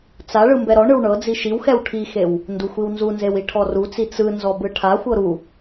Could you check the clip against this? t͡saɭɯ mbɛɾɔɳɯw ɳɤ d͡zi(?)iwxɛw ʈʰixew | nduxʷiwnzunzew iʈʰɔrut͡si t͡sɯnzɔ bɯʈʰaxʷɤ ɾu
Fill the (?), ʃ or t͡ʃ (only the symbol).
ʃ